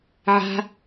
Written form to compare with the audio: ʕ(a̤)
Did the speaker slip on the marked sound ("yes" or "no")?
no